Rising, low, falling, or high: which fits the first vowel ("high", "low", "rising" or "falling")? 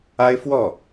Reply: high